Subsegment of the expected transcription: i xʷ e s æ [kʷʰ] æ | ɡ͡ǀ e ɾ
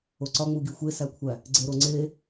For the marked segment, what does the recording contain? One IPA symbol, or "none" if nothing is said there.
kʷʰ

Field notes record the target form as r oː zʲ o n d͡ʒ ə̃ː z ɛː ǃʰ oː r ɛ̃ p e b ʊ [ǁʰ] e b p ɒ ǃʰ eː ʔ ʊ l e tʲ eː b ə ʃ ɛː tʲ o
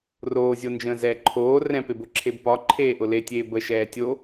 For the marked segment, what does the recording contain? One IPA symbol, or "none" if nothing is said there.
ǁʰ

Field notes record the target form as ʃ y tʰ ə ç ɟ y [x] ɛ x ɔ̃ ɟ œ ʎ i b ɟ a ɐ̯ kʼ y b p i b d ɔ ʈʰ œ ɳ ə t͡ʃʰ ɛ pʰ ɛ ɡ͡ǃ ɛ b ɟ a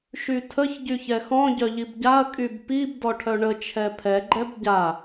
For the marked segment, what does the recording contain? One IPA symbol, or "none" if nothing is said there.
ç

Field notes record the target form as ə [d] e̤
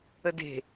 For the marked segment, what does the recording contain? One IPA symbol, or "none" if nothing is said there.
d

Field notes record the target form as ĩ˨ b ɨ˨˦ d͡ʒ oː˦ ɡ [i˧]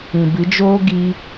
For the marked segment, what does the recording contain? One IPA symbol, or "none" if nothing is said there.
i˧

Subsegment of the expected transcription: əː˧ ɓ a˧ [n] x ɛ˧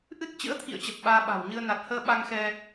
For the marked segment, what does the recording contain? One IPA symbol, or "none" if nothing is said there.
ŋ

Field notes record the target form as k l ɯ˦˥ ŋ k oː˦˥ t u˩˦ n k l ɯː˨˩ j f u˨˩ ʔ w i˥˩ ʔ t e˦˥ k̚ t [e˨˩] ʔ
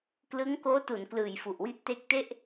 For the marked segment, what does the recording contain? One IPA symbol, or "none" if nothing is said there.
e˥˩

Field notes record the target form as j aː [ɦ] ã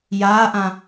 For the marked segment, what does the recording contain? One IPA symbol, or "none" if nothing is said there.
ʔ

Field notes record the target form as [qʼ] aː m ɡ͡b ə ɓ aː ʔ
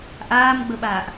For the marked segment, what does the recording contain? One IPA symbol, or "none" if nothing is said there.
ʔ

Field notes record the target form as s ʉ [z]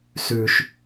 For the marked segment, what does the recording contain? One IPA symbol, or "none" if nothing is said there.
ʃ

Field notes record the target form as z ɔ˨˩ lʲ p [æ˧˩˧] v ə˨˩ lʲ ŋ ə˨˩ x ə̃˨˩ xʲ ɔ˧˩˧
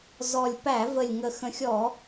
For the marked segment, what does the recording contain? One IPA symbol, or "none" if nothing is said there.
æ˧˩˧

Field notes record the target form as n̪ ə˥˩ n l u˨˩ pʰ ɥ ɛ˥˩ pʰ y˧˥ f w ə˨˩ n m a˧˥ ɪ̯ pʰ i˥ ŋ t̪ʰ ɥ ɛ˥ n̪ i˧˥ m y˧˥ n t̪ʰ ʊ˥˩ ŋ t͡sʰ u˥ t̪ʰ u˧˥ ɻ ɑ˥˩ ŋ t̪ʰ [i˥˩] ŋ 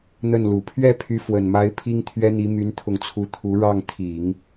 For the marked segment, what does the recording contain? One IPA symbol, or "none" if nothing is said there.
i˨˩˦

